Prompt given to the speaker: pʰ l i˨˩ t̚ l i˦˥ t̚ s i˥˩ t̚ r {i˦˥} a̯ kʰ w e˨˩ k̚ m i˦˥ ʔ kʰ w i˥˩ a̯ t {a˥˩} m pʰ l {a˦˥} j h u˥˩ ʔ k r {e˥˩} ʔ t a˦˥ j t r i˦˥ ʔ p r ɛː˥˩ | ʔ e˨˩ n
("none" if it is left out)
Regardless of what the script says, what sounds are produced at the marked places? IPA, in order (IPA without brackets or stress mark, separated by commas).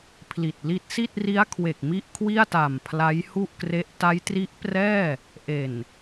i˦˥, a˨˩, a˦˥, e˦˥